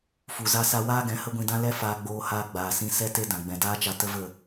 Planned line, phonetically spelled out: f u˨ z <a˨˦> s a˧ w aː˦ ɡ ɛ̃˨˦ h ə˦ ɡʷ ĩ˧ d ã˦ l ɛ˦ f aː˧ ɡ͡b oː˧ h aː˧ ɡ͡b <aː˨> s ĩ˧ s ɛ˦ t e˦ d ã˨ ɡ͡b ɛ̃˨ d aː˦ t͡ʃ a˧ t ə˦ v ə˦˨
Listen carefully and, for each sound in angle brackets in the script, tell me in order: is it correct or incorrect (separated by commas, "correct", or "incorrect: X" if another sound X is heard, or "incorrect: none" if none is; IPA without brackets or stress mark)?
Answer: incorrect: a˧, correct